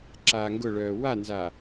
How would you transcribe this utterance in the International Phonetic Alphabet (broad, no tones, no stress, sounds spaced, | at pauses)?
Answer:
ǁ aː ŋ ɡ ʊ ɭ œː w a n z a